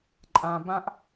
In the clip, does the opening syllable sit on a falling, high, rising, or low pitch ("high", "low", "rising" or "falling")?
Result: low